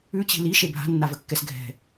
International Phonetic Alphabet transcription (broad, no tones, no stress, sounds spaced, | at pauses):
ʉ t͡ɕ i̤ l i ʃ e bʱ a̤ nː a v ə kː ɛ s ɡʱ ɛ̤